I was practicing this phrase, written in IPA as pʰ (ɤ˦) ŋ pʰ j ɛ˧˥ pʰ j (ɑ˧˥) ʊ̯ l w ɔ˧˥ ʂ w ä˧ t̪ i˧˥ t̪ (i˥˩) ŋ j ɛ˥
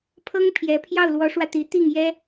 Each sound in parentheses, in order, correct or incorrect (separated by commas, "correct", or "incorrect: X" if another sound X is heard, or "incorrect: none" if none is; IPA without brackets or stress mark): incorrect: ɤ˥, incorrect: ɑ˥˩, correct